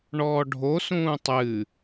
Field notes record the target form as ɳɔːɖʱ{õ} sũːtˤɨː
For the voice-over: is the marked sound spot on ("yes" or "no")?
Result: no